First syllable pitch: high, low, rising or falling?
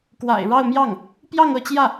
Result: low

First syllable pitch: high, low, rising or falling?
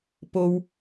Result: low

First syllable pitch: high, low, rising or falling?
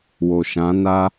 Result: low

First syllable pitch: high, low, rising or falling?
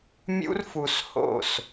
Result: high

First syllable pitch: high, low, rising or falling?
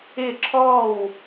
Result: falling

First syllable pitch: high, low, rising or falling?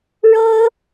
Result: high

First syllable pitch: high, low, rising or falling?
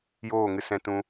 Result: falling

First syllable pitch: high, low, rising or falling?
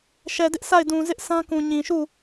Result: low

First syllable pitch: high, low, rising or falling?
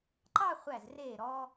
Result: falling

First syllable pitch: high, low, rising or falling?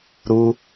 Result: high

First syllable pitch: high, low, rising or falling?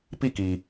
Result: falling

